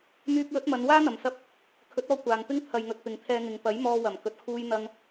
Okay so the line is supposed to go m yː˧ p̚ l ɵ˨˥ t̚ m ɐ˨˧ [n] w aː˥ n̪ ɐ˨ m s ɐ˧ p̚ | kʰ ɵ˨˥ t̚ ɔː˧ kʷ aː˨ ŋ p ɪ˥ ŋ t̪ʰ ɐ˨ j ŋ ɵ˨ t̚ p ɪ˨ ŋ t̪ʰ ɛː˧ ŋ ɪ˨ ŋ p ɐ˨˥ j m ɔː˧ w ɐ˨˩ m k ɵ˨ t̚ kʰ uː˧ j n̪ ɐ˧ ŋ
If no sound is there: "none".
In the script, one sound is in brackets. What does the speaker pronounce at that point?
n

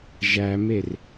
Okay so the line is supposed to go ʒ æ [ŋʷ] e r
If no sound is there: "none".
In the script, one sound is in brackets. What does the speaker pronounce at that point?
m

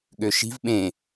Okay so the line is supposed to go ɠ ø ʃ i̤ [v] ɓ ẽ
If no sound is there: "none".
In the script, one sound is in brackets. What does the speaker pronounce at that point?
v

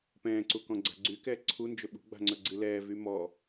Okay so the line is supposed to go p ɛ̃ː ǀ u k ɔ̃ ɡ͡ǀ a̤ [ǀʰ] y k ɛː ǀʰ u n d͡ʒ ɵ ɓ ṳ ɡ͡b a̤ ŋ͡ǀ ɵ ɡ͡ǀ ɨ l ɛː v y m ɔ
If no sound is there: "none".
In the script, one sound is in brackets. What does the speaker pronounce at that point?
ɡ͡ǀ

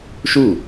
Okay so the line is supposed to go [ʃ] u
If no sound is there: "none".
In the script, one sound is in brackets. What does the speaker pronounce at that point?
ʃ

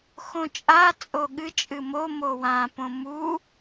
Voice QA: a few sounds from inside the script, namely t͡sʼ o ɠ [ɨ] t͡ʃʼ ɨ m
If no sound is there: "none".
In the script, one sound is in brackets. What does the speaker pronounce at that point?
ɨ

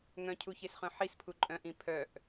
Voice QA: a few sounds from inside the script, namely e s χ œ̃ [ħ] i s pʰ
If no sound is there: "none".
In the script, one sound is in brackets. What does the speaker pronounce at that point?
ħ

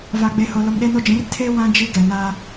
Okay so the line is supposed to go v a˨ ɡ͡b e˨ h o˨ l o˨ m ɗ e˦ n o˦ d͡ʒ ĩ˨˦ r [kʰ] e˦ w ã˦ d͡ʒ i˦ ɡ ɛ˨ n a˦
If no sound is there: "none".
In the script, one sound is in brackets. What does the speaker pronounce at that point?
tʰ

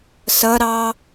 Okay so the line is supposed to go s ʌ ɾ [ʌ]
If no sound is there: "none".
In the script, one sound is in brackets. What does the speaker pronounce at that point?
ɑ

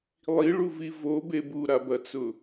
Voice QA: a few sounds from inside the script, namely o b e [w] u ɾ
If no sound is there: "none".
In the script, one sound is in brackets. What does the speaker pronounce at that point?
b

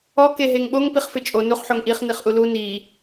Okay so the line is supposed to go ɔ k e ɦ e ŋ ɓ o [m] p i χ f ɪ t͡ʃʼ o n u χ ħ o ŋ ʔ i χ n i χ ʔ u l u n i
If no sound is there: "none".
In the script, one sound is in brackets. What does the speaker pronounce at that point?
ŋ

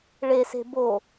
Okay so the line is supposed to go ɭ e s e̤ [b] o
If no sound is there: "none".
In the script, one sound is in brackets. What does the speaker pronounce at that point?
b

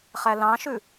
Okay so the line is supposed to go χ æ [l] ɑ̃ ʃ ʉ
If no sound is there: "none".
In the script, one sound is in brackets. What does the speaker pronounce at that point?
l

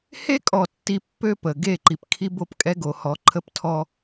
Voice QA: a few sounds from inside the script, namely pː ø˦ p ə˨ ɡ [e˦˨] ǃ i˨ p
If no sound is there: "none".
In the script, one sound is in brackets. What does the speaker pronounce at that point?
e˦˨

